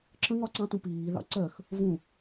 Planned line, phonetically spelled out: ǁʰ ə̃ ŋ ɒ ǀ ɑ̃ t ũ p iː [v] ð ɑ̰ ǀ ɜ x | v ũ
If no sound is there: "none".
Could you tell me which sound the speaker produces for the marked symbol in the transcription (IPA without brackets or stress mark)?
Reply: none